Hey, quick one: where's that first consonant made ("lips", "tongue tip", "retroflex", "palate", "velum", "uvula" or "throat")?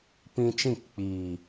lips